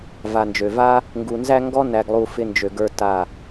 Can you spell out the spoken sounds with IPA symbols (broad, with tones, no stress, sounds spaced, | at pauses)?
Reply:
v a˨ n d͡ʒ ø˨ v a˦ | ŋ ɡ u˨ n z æ˦ ŋ ɡ ɔ˦ n æ˨ ɡ lˠ u˨ f ɪ˧ n d͡ʒ ø˨ ɡ ə˞˧ t a˦˨